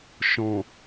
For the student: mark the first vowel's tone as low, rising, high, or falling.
low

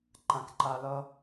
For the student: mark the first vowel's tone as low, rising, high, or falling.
low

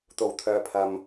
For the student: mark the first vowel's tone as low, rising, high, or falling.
low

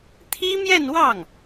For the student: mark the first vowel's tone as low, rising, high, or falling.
high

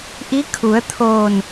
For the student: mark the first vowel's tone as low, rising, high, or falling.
rising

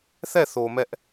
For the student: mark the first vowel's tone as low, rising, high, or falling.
falling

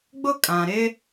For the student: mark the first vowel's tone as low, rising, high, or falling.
high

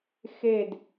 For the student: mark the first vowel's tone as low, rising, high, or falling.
falling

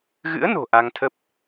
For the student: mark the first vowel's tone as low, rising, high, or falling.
rising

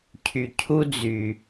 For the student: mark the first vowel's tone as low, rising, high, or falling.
low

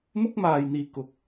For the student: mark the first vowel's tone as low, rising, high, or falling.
high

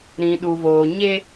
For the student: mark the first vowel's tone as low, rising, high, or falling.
low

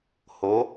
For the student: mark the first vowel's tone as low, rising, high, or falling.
rising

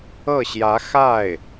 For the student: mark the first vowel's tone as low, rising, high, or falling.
falling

